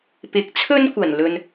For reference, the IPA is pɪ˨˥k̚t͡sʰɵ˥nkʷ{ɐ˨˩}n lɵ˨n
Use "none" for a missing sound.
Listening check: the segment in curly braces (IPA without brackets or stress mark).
ɐ˨˩